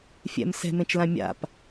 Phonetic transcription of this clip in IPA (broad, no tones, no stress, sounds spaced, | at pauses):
fʲ ɛ̰ m s ɛ̤ m ẽ t͡ʃ l ã mʲ a̰ p